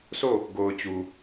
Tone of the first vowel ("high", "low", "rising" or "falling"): falling